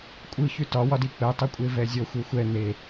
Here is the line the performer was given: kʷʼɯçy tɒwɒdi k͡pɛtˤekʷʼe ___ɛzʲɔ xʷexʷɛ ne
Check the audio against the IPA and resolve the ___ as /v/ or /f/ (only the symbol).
v